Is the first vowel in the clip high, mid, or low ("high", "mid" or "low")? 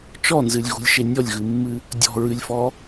mid